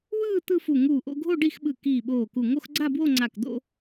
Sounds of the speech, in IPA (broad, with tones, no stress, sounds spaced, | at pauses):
w ɯː˥˧ t̪ ɯ˥˧ f u˧˩ ŋ uː˧˩ ʔ o̰˥˧ ɡʱ o˥˧ ɖ i˥˧ x ɓ ɯ˧˩ k iː˧˩ ɓ oː˧˩ k u˧˩ ŋ o˥˧ x ɡ͡ǀ a˥˧ b w o˥˧ ŋ͡ǀ a˧˩ k d̪ o̰˥˧